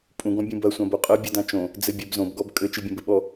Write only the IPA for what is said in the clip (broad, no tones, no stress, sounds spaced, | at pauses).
pʼ ũ ɡ ɔ̃ bʲ ũ b ɐ sʷ ã b o qʼ ɐ bʲ ɨ d ã t͡ʃ õ | d͡z ɘ bʲ ɛ b z õ b ɡ ɔ b kʼ ɘ t͡ʃ ɨ bʲ ɐ̃ b ɘ ɓ ɔ